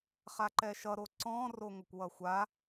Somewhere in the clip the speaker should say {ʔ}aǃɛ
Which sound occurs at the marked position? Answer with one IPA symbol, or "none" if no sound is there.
χ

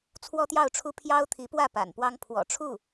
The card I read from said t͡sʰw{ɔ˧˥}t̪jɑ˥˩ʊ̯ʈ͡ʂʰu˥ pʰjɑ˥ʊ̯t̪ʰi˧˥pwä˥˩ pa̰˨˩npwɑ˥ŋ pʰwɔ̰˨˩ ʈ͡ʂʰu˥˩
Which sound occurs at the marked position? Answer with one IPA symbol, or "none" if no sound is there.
ɔ˥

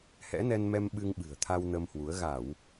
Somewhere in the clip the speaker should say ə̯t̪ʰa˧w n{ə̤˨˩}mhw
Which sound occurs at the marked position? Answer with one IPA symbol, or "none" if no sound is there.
ə˧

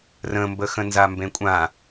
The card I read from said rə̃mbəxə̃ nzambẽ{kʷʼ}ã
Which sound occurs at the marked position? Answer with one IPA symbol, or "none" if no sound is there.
kʷʼ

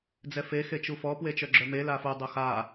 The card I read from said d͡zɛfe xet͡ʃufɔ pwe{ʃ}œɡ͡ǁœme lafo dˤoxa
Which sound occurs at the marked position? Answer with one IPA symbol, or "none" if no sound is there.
t͡ʃ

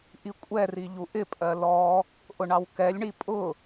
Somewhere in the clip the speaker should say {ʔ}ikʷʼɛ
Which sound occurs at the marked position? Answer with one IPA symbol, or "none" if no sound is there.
ʔ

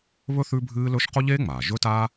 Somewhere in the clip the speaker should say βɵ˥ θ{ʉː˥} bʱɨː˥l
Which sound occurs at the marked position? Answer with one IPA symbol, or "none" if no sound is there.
ʉ˥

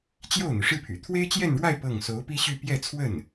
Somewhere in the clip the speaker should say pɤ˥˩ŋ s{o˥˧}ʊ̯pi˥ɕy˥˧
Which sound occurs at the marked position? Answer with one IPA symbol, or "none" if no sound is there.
o˧˥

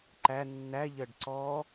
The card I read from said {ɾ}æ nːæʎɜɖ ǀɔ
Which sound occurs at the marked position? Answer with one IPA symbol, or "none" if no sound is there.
ǃ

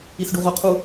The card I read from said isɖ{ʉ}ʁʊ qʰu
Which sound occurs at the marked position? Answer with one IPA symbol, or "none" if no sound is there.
u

